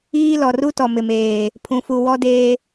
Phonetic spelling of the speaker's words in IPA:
iː˦ lɔ˨ ru˦ tɔ˨mɪ˨meː˨ | pʰũ˨fu˨wɔ˦deː˦

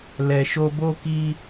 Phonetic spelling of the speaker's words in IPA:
lɛ˨ʃo˧ bo˧ki˧

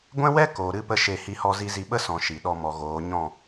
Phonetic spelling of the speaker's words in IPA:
ɡʷɛ̃˦wɛ˦koː˨ ɾɨ˦pə˦ʃe˦˨ hi˧hɔ˧zi˧zi˧ ɓə˦sɔ̃˨ ʃi˨ɗɔ˧ mɔ˨ ɣoː˨˦ɲɔ̃˦˨

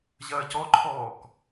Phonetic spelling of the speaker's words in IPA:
ʑɐːcɔǃʰɔːk

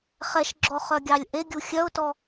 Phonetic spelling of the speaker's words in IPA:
χɛʃɡ͡ǁɔχœɡʲɑlʲ ʔeɡʲu xʲœʊ̯tɔ

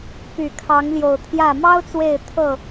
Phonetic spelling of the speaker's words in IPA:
py˨˩kʰɑ˨˦ŋ ljo˨˩ʊ̯t̪ʰjä˥˨ mɑ˦ʊ̯ t͡swe˥˨ɪ̯ t̪ʰɤ˥˨

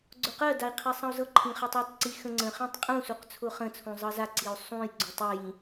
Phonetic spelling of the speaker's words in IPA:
ɡ͡ǀʊqɜdai̯ qʰisˤə̃u̯zɤǃʰĩ χɜtˤitˤǀi xə̃ŋ͡ǀə̃χĩtˤ qʼũsuq t͡sʰʊχə̃t͡sʰũ zˤɤzaǀiu̯ sˤũj ɡ͡ǀʊtˤijĩ

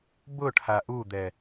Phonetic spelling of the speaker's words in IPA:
bʊʈʰa ʔud̪ɛ

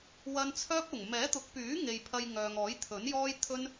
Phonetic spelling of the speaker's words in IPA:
wɐ˧nt͡sʰœː˥p̚ ʊ˨˩ŋ mɛː˨˥t̪ʊ˨˥k̚pyː˨˥ŋe˨j pʰɐ˧jŋœː˨ŋ ɔː˨˥jt̪ʰɵ˨˥njɔː˥jt̪ʰɵ˥n

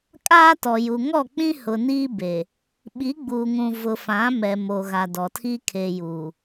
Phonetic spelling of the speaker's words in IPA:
kʼaː˦tɔ˨ju˨ ŋɔ˦˨k͡pĩ˦hʊ˨niː˦ be˨ | ɓi˨˦ɡ͡buː˨ŋũ˨ vʊ˨ fã˨˦mɛ˨mo˨ ɣa˨dɔ˨tʰiː˦ kʰe˨ juː˨

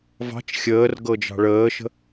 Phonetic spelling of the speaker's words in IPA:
vɑ̤t͡ʃ xʲəːrɡɤ d͡ʒɑ̤ɭəːʃə̤

